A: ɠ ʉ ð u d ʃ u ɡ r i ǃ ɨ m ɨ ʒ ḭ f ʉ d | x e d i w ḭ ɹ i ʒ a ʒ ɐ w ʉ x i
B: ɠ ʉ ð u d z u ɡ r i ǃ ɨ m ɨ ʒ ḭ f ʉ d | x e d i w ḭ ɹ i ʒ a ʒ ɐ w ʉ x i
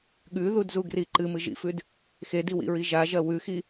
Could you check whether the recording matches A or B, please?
B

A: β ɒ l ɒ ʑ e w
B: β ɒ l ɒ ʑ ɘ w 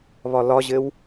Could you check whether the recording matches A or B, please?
B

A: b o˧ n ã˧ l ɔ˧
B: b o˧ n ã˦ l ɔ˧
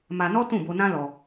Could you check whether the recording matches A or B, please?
B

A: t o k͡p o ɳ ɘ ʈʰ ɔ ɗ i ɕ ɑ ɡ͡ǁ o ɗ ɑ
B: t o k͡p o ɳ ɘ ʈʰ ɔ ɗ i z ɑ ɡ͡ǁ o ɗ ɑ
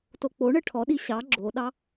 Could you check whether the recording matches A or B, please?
A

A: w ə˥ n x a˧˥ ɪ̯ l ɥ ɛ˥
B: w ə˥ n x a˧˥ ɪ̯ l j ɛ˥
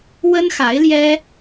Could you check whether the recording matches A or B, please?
B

